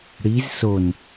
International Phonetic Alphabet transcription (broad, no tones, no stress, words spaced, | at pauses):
ɽiz son